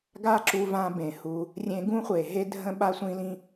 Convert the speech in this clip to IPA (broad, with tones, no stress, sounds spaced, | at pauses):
ɡ a˦ ǁ u˧ v ã˧ b ẽ˨ h u˧ | rʲ ẽ˧ ɡ ũ˦ χʷ e˨ ɦ e˦ dʱ ə̃˦ ɓ a˦ sʷ ĩ˦ l ĩ˦